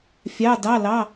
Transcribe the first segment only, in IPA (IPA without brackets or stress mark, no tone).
fʲ